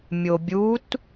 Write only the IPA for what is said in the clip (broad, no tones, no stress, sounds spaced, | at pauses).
mʲ o bʲ u t